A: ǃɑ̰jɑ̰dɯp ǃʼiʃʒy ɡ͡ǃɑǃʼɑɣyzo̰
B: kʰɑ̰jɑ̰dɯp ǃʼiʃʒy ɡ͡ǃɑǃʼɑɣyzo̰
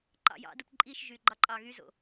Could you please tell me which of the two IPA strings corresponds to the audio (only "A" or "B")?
A